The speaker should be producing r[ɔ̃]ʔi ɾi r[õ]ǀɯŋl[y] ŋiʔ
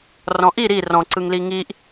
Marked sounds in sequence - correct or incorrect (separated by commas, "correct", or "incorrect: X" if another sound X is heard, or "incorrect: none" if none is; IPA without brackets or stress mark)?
correct, incorrect: ɔ̃, incorrect: i